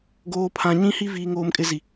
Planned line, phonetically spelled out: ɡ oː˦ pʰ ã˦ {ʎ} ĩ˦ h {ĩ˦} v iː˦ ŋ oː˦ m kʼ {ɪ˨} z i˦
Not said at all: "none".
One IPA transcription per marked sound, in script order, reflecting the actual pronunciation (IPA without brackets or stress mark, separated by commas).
ɲ, i˦, ɪ˦